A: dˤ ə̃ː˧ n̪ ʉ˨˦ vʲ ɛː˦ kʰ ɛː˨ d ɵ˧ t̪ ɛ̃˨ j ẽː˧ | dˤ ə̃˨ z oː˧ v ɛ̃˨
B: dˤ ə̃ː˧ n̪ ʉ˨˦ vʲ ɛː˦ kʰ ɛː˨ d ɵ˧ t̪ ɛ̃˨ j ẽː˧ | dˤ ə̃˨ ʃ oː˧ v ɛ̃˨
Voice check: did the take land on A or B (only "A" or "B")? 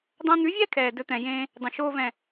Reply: B